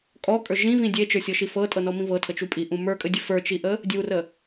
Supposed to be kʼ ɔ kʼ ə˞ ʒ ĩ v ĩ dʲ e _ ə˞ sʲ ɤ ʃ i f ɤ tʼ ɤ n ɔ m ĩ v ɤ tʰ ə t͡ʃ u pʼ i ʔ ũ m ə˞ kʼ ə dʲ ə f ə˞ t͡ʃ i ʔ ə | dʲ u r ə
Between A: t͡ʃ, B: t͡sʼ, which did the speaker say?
A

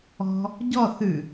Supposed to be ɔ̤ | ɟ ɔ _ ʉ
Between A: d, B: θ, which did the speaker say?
B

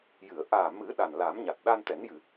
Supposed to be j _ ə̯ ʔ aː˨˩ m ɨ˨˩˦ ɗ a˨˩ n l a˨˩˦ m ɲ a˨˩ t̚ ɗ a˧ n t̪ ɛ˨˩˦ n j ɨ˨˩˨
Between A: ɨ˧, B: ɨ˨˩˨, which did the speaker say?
B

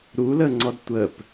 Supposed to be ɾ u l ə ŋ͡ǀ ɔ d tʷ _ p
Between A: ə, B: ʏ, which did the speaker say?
A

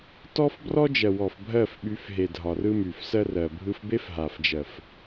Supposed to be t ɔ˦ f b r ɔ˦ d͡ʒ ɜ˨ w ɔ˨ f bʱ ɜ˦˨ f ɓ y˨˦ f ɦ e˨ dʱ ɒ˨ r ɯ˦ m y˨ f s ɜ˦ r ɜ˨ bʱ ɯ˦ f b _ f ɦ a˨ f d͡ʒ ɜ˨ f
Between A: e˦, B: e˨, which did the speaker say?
A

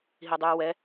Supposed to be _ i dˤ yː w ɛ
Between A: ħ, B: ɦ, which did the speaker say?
B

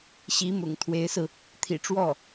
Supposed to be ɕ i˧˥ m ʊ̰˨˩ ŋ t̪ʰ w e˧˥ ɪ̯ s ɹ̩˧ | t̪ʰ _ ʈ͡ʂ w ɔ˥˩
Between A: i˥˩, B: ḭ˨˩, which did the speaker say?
B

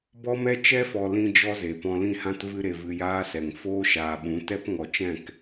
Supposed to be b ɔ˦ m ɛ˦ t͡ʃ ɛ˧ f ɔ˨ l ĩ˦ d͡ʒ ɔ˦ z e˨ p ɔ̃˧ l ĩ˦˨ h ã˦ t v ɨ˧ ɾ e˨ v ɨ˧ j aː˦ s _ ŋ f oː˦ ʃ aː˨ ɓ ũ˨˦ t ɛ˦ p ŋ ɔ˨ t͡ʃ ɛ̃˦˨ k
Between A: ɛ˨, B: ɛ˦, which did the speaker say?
A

